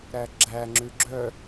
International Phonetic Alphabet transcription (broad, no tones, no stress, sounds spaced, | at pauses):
ɾ æ ɡ͡ǁ æ ŋ͡ǁ ʉ ɡ͡ǁ œ